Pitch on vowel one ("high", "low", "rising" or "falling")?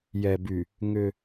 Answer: low